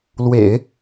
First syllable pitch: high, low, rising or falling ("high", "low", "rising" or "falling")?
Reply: low